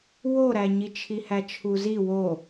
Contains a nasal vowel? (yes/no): no